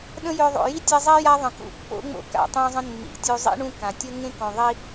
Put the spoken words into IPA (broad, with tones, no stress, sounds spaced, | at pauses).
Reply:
ɗ ə̃˦ j ø˨ ðˤ o̰˩ j i˥ tʲ e˦ zˤ i˥ j a˦ ðˤ ə̃˩ k ṵ˦ pː o̰˥ ŋ͡m o̰˦ k a̰˩ tˤ õ˦ zˤ ə̃˦ nː ḭ˩ tʲ u˨ zˤ ḭ˥ ɳ ũ˦ k ã˩ tʲ ʌ˥ ŋ ẽ˥ k õ˨ ðˤ i˦